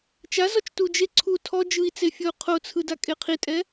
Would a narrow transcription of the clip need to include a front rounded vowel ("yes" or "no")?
no